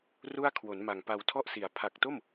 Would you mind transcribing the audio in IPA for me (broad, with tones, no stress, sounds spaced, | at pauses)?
r u˥˩ a̯ kʰ w o˩˦ n m a˨˩ ŋ p a˧ w tʰ ɔ˥˩ ʔ s i˩˦ a̯ pʰ a˨˩ k̚ t o˥˩ m